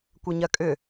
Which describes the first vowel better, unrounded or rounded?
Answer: unrounded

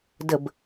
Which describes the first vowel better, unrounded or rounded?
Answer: unrounded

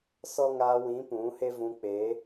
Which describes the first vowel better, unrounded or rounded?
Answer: rounded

